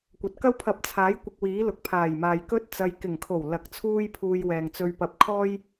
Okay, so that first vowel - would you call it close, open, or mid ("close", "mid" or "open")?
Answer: open